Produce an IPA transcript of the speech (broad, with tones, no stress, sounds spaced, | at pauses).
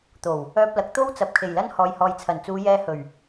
t̪ o˨˩ w | œː˧ p̚ l ɐ˨˥ k̚ t̪ o˥ w t͡s ɐ˨ p̚ kʰ e˨˩ j l ɐ˥ n h ɔː˨ j h ɔː˨ j t͡sʰ ɐ˨˩ n t͡s uː˨˧ j ɛː˧ h ɵ˨˩ ɥ